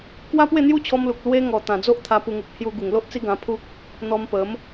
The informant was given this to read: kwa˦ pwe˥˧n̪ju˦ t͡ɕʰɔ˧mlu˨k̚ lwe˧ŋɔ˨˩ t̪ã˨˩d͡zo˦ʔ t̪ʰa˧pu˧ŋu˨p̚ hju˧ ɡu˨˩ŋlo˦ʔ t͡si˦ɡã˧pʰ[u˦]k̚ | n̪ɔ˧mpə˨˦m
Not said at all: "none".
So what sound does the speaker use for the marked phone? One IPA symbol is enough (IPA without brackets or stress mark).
u˦